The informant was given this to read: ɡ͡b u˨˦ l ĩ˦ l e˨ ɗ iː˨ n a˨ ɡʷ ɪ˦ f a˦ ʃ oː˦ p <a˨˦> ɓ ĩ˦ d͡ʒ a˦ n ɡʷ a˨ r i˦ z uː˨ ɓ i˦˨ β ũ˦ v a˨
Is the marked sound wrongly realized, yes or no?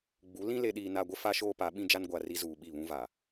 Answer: no